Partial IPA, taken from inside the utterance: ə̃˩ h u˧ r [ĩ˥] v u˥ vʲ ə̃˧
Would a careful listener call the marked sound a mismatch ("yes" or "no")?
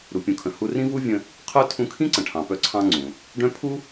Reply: no